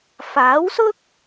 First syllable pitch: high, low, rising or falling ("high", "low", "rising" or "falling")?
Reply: rising